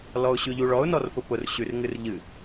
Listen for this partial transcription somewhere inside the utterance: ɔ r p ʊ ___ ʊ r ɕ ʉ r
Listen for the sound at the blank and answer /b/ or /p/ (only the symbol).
p